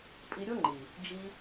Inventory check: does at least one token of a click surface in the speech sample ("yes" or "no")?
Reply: yes